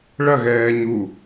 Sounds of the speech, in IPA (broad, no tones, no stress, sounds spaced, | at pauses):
ɭ ɐ ɣ ɛː ɲ u